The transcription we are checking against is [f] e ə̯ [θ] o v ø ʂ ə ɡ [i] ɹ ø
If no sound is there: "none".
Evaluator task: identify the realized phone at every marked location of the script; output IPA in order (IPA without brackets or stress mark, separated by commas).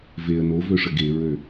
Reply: v, n, e